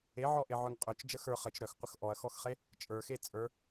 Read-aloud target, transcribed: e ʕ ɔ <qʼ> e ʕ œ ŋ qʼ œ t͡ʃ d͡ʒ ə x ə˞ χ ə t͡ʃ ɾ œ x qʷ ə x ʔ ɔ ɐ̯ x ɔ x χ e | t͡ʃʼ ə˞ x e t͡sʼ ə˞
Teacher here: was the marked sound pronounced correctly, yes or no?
no